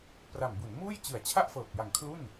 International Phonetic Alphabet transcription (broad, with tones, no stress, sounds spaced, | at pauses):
p r a˨˩ m b u˩˦ n m uː˥˩ j t͡ɕ ɯ˨˩ a̯ t͡ɕʰ a˥˩ ʔ f ɤː˨˩ k̚ j a˨˩ ŋ kʰ l u˥˩ n